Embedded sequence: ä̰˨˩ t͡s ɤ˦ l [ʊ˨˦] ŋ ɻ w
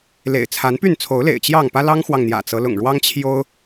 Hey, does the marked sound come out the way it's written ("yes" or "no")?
no